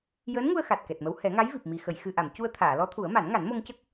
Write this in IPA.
jəː˧˥nŋu˧ə̯ xa˨˩t̚kɛ˨˩t̚mə˧˥w hɛ˨˩˦ŋa˧˥jvi˨˩p̚mi˨˩ xə˨˩˨jxɨ˨˩ʔa˨˩˨m cu˧ə̯t̪ʰaː˨˩˨lɔ˧˥t̪ʰu˨˩˦ə̯ ma˨˩˦nŋa˨˩˦nmo˧ŋcə˦˥k̚

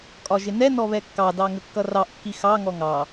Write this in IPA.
kʼɒʒɪnɛ nɔβɛkːɑdɑ ŋəkːʌrɑʔkːi xɑ ŋɔŋɑ

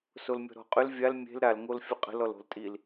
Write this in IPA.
solmʲɔ̤ɾɔ̤qʼʏl vʲal mʲe̤l ɾal ŋolfʲəqʼə̤l ɔlo̤ltʼil

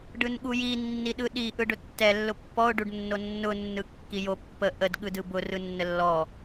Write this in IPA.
ɖɯnɠuji nːiɗɯɗi ʔɯɖʊtːɛ lːʊpːɔʊ̯ ɖuɖnːonːʊ nːɯkːijo pːə ʔəd ɠɯdɯbʊ rɯnːəlːɔ

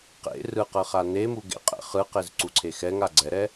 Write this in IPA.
qḛ rɯ qɤχanemu ɡḛqʼɛ̰χɯqez ǀuǀʰexɛŋa ɡ͡ǀɛɾɛ

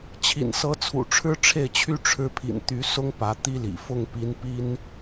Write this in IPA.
t͡ɕʰḭ˨˩nsɤ˧˥t͡sʰṵ˨˩ ʈ͡ʂʰɻ̩˥ʈ͡ʂʰe˥˩ɪ̯t͡ɕʰy˥ ʈ͡ʂʰɻ̩˧˥pʰḭ˨˩n t̪y˧˥sʊ˥ŋ pä˧˥t̪i˥lḭ˨˩ fʊ˥˩ŋpi˧˥npi˥n

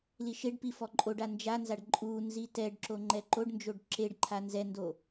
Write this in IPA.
liʃeɖpi fɔǃʼoɖa nd͡ʒanzaɖ ǃʼunzi tɛɖǁo ŋ͡ǃɛǃoɖnd͡ʒoɖ ǁeɖǃʰa nzɛndo

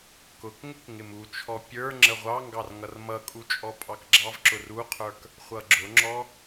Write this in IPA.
kʊkŋɪk ŋɪmut͡ʃʰɔ pʲə˞ ŋ͡ǁəʁʷɑŋɡɑr ŋʌrmʌkʼu t͡ʃʼɔpʼɑkɡ͡ǁɑvǁʊr uqʰə˞k | χʷʌɡ͡ǁʊŋ͡ǁɔ

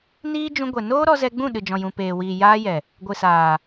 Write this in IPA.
niː˦d͡ʒũ˧ɡʷɛ˨ noː˦ ɾɔ˧zɛ˧ɡ͡bũ˦˨ ɗɨ˨d͡ʒɔ̃˨ jũ˨peː˨wiː˨ jaː˦jɛ˨ | ɡʷɨ˨saː˨

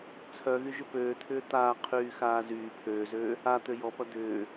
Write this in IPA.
t͡sʰœɣyʒʏ pøːt̪ʰʏː t̪aː qʰyːxaːzyː pʰøːzøː | a t̪øjɔpɐ d̪ʏː

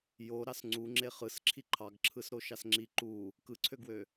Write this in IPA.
jo ɾɑsŋ͡ǀu ŋ͡ǁeχɯs ǁʰiǃʰɑɡ ǁʰɯsɾoʃɑsŋ͡ǁi ǃu | kɯǀʰøɡwø

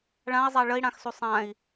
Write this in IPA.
ɭãi̯zˤa ɭəi̯ɽãxsu sˤãi̯

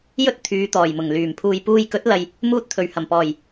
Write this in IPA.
jɵ˥t̚ t̪ʰyː˨˧t̪ɔː˨˩jmʊ˨˩ŋlyː˨˩m pʰuː˨jpuː˧j kɵ˨˥t̚lɐ˨j | muː˧t̚t̪ʰɵ˨˩ɥ hɐ˨˩mpɔː˨˩j

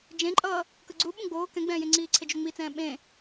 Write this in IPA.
d͡ʒẽǃʼʌː | kɯɡ͡ǀuɓũ ɡ͡boː kɛ̃ɡ͡bɛ̃ː jẽŋ͡ǀiːǀʰed͡ʒo ŋ͡mit͡sɛ̃ː ɓẽ

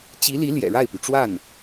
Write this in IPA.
t͡ɕi˧˥li˧˥ ljɛ̰˨˩ɻa˥˩ɪ̯py˩ʈ͡ʂwa˥˩n

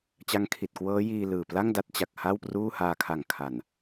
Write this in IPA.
t͡ɕa˦˥ŋkʰi˨˩t̚kwɤː˦˥ jiː˧ lɯː˨˩ pla˥˩ŋda˦˥t̚t͡ɕa˨˩k̚ ha˥˩wpruː˥˩ haː˧ kʰa˨˩ŋkʰa˨˩n

